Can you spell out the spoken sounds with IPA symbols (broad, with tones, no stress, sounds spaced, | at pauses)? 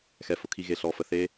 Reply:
x ɛ˨˦ f ʊ˨ kʰ i˧ ɣ e˧ ɬ ɔ˧ f ə˧ θ e˦